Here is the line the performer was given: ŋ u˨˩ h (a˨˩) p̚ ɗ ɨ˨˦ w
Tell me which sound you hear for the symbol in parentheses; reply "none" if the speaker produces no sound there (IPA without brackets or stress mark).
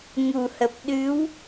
ə˨˩